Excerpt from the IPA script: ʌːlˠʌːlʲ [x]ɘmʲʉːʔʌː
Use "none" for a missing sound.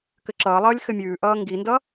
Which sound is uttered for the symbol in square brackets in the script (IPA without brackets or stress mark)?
x